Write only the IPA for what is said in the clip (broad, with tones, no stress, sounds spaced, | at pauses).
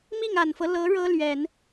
m i˥˩ ŋ a˨˩ n f ɤ˦ l ɤ˧˥ ɻ ɤ˥ l ɥ ɛ˨˩˦ n